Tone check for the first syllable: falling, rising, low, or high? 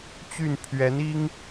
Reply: falling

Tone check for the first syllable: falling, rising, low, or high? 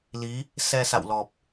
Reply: rising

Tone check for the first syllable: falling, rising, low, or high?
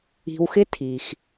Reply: low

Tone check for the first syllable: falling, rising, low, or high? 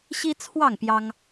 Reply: high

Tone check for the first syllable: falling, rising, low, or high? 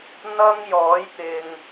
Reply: high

